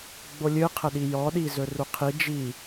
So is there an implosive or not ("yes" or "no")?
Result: yes